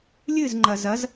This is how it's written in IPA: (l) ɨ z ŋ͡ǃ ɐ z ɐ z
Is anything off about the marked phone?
yes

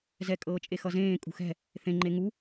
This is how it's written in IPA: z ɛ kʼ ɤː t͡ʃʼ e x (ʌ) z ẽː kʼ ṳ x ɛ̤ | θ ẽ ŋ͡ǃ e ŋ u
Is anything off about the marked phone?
no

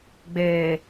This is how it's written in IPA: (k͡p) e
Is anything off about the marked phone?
yes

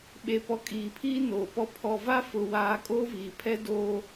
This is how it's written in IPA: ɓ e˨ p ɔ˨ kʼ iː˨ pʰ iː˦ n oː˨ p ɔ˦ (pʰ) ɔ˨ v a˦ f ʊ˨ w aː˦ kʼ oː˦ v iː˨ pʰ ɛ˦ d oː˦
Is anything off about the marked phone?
no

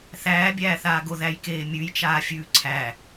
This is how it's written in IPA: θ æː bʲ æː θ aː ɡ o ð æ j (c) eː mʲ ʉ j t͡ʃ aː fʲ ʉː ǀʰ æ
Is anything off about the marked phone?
yes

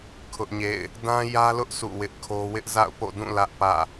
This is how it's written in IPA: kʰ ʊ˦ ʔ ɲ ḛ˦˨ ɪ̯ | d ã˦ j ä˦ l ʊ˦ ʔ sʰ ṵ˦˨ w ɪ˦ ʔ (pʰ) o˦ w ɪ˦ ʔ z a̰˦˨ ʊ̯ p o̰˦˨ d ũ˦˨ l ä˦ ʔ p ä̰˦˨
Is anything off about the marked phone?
yes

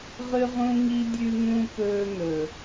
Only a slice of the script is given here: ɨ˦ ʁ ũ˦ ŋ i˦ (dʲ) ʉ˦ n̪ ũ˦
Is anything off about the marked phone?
no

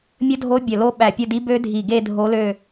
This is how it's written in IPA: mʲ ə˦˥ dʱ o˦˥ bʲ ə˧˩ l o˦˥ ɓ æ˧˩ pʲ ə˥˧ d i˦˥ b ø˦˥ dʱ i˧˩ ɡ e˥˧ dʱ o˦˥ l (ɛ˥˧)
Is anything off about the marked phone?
yes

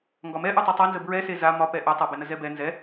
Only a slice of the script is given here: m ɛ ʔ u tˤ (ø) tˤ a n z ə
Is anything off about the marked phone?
no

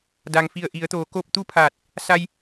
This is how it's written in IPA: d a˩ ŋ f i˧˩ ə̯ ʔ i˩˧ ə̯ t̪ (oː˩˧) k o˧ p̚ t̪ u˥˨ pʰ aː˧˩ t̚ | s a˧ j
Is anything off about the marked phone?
no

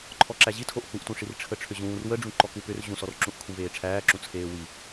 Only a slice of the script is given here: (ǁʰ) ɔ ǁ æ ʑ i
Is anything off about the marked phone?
yes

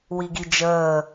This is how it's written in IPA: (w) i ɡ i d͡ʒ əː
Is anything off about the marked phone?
no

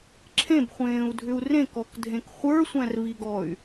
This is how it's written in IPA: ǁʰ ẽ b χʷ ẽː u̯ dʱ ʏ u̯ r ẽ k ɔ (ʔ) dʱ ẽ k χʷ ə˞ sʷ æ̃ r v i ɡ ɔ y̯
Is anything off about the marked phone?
yes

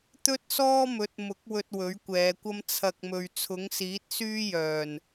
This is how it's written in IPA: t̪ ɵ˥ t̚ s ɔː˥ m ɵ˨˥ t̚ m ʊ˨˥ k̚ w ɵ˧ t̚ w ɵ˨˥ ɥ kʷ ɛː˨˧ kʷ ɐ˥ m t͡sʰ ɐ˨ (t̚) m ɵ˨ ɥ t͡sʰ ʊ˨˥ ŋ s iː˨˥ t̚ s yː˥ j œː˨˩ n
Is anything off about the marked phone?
yes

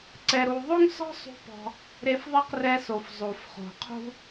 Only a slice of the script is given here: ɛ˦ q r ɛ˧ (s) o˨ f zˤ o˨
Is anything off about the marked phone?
no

